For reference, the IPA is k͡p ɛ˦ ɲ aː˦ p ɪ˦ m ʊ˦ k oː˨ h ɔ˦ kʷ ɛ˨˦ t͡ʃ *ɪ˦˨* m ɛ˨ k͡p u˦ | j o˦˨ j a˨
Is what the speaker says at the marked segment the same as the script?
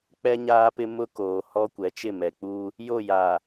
yes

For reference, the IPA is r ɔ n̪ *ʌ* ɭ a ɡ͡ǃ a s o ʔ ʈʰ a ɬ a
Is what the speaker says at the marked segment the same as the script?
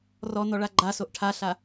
no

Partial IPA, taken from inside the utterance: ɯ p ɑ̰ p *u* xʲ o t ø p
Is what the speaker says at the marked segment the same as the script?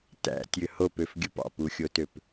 yes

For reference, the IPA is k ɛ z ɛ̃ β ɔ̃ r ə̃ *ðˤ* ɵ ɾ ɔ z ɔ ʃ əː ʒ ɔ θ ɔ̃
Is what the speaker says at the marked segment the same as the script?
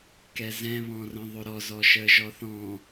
yes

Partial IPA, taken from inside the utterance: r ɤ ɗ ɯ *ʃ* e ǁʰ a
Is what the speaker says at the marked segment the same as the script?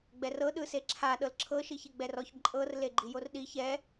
no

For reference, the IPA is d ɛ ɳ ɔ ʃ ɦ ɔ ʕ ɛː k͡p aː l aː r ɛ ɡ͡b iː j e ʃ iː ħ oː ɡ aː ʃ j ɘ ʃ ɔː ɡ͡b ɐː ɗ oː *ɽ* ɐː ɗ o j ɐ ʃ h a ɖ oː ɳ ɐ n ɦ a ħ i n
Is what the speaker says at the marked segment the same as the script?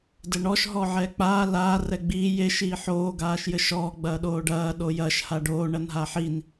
no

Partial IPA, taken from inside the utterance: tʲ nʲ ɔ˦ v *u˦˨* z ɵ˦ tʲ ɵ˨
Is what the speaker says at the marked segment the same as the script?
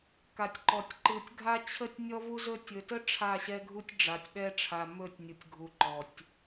no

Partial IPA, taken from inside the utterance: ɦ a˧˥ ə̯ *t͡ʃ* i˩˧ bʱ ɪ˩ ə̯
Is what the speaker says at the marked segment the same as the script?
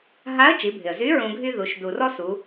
yes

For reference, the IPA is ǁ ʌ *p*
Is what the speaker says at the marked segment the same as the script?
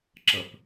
yes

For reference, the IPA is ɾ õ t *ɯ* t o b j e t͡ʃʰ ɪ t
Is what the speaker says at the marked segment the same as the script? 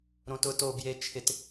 no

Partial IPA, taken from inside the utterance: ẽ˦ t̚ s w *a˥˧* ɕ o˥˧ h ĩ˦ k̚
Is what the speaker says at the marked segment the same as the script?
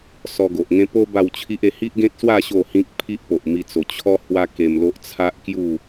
yes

